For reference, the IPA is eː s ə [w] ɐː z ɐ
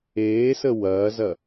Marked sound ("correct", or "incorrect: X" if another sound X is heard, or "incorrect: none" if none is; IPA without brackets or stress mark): correct